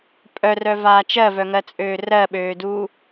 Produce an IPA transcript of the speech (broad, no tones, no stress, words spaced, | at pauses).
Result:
pʼœrœvaː t͡ʃɜvœŋɜt͡sʼøː rɜɓøːduː